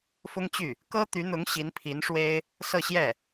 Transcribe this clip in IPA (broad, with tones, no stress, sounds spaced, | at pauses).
f ʊ˥ ŋ t͡ɕ y˥˩ | k ɤ˥ t̪ y˧˥ n̪ ʊ˧˥ ŋ ɕ i˧˥ n pʰ i˧˥ n ʂ w e˥ ɪ̯ | s ɤ˥˧ ɕ j ɛ˥˩